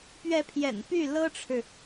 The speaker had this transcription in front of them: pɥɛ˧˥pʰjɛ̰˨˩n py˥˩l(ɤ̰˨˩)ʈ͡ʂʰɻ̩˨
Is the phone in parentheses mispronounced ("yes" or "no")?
yes